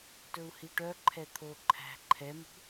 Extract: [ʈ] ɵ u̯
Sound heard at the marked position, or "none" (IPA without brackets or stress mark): t